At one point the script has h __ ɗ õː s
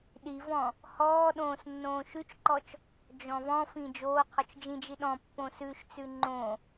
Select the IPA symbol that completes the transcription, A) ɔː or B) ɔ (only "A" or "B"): A